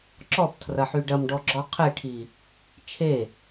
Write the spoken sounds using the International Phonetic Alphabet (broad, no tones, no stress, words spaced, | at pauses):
ǁɔptʰrɐħy ɖɐmɖɔɡ͡ǁɔ qʰeʈʰi | t͡ʃʰe